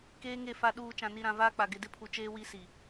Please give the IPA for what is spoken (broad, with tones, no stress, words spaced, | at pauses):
keː˦ŋe˦˨ fa˨ɗuː˨ t͡ʃã˨ni˨ɾã˨ vaː˦k͡pa˨ ɡɪ˨ dɪ˦pʰu˨ t͡ʃeː˦wi˦si˨